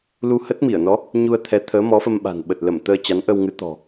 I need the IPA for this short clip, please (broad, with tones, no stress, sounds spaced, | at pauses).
l u˧ h ə˦˥ t̚ m i˧˩ ə̯ n ɔ˨˦ | ɲ u˧ ə̯ t̪ʰ ɛ˨˦ t̪ʰ əː˨˦ m ɔ˨˦ f ə˧ m ɓ a̤˨˩ n ɓ ə˨˩ t̚ l ə˧˩ m t̪ əː˧ t͡ɕ a˨˦ n ʔ ə˧ w ŋ ɨ˨˦ t̪ ɔ̤˨˩